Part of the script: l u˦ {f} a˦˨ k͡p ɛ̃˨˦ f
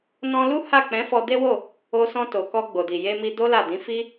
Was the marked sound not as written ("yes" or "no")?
yes